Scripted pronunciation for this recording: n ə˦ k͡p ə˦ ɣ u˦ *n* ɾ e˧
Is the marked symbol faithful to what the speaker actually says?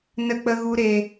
no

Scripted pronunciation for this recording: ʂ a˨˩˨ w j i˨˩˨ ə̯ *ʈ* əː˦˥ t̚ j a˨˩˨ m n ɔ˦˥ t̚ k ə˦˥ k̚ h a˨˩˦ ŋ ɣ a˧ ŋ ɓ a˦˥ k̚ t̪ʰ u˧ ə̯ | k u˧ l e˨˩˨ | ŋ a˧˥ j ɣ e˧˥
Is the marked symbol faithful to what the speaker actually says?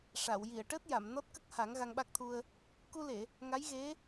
yes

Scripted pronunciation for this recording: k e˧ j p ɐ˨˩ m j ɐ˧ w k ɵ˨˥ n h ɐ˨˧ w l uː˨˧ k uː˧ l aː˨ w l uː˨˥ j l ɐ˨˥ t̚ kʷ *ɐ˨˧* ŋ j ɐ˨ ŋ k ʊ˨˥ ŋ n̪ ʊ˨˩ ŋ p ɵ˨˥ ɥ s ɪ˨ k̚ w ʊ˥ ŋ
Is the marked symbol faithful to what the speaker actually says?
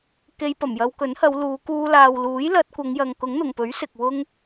yes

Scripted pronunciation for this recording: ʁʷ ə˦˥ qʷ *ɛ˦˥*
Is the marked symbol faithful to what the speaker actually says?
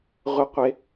no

